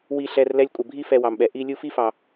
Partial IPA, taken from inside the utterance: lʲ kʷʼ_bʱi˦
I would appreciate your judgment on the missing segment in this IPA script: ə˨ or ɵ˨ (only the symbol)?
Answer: ə˨